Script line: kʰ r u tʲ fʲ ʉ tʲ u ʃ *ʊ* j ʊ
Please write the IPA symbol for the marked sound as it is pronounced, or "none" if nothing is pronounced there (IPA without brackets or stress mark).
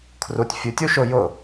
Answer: ʊ